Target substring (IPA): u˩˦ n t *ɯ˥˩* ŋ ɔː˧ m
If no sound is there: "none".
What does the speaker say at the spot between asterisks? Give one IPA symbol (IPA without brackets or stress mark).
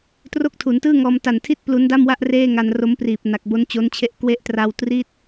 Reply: ɯː˥˩